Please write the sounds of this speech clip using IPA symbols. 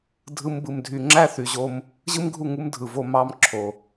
dʱ ɯ˦ m b ɯ˧ m dʱ y˧ ŋ͡ǁ æ˦ θ y˨ ʑ o˧ m | ʑ ɯ˦ m ɡʱ u˦˨ ŋ u˦ m dʱ ɯ˨ v o˧ m ɑ˧ m ǁʰ o˨

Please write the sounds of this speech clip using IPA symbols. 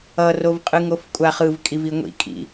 ʌ r o v qʼ ɯ ŋ o f kʷʼ a χ ɯ v kʼ i v i ŋʷ ḭ kʼ ḭ

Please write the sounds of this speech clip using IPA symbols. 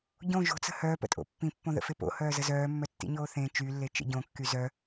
ɟ õ ʒ o̤ t͡s ə̤ h œː p ə̰ tʼ o̰ pː ĩ pː õ ð ə̰ f e p o̰ h œː z ə z œː mː œ tː ḭ ɲ oː θ ẽ t͡ʃ y lː e t͡ʃ ḛ ɟ õ kː y z œ

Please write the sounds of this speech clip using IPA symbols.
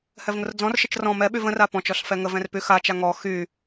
h ɛ v ŋ ʊ r d͡z ɔ̃ r ʃ ə t͡ʃ r ɔ̃ m ɛ ɓ y v ə̃ r a p ɔ̃ t͡ʃ ɔ ɬ f ɛ ŋ ə v ɛ̃ r p y x a t͡ʃ a ŋ ɔ x y

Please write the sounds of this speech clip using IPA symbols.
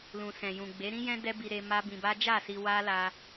l ũ˨ s ɛ̃˨ j ũ˨ ɡ͡b e˨˦ ɾ ĩ˦ j ɛ̃˦ d ɛ˦ b i˧ ɾ e˧ m a˦ b ĩ˧ b a˦ d͡ʒ a˦˨ s i˧ w a˦ l a˧

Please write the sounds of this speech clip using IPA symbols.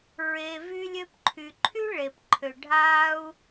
ɹ e˩ v y˧ lʲ ø˧ p ǃʰ y˩ ǃʰ y˥ ɭ e˩ p ǃʰ ø˩ ɖʱ a˧ u̯

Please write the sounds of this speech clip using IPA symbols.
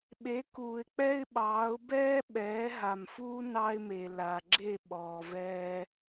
ɓ e˨˦ k uː˨ ɪ̯ k͡p ɛ˦ ɪ̯ ɓ ɑː˨˦ ʊ̯ b ɛː˦ ɓ ɛː˨˦ ɦ a˨ m f uː˦ n ɑ˦ ɪ̯ m e˨ l a˨ ɡ͡ǁ e˦˨ ɓ ɔː˨ v ɛː˦

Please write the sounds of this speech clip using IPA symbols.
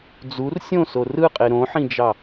d͡z u r sʲ õ s o r ɯ qʼ e ɾ õ ħ ĩ d͡ʒ ɑ

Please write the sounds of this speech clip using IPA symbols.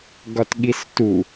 ɡ ɒ t ɠ i s t u

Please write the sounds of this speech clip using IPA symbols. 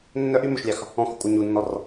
nː œ ʔ y m ɵ ʃ lʲ ɑ x | ɔ̃ x u kʷʼ œ ɲ u nː ɔ r

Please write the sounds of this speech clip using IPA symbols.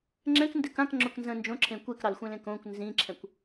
ŋ͡ǁ ɛ̃ k n d ɘ k ã k ŋ͡ǁ ʊ k n z ə̃ n d͡ʒ õ ǁʰ ẽ kʷ e k ɾ ɑ l xʷ ɛ̃ l ẽ k õ kʷ n z ĩ ǁʰ ɛ̃ kʷ

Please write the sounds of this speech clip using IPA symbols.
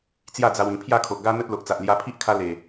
t͡s j a˥˧ d͡z a˧ w ĩ˨˩ pʰ j a˥˧ kʰ o˨ ʔ ɡ a˦ n̪ ə˦ t̚ l o˨ ʔ t͡s a˨ ʔ l j a˧ pʰ i˦ ʔ kʰ a˧ l e˨˩

